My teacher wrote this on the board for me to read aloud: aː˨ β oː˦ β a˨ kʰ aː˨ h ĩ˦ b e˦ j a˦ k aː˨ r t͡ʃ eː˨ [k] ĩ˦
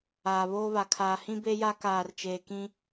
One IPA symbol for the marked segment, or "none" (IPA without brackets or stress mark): k